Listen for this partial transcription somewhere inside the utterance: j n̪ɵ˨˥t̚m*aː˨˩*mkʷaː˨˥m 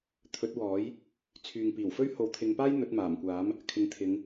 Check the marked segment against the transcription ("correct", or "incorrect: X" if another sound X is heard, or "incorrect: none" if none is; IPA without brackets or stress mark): correct